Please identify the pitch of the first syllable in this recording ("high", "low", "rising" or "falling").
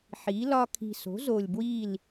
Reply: rising